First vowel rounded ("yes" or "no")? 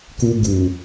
yes